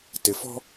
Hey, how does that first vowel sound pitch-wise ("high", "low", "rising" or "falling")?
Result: low